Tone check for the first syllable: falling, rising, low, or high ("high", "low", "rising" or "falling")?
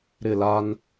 falling